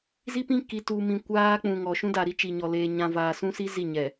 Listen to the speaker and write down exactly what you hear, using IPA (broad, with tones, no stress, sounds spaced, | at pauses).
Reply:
z i˦ p ĩ˦ k i˨ t uː˨ m ĩ˨ kʷ aː˦ k͡p ũ˨ ŋ ɔ˨ ʃ ũ˦ d a˨ ɾ i˦ t͡ʃ i˨ ɲ ɔ˨ l eː˨ ɲ ã˨ v aː˨ s ũ˦ s i˦ z i˦˨ ɲ ɛ˨